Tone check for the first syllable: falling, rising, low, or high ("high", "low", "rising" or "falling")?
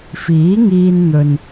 rising